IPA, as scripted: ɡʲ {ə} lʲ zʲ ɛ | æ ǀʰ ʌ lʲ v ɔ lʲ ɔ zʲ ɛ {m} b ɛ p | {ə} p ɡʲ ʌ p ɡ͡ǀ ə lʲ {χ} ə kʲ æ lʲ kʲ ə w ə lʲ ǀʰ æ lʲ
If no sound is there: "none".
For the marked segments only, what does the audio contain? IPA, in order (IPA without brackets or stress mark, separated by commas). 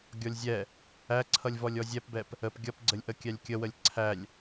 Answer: ɔ, p, ə, ʔ